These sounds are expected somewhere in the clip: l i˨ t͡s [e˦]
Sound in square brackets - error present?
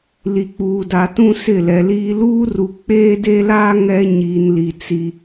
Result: yes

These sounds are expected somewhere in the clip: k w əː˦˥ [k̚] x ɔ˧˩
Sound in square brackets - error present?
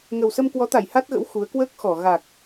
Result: no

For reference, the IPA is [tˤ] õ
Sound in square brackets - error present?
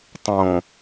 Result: no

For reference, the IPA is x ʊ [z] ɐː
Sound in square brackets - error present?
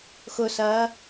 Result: yes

